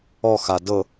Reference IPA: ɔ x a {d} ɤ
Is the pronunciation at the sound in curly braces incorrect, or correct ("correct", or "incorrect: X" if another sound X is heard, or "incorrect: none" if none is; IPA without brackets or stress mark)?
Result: correct